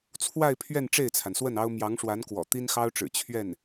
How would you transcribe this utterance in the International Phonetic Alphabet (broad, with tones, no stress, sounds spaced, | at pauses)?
t͡sʰ w a˥˧ ɪ̯ pʰ ɥ ɛ˥˧ n ʈ͡ʂ e˥˩ ɪ̯ t͡sʰ a˩ n s w ə˥˩ n ɑ˥ ʊ̯ m j ɑ˧˥ ŋ ʂ w a˧˥ n k w ɔ̰˨˩ t̪ i˥ n x ɑ˥ ʊ̯ ʈ͡ʂ ɻ̩˨˩ t͡ɕʰ ɥ ɛ˥˩ n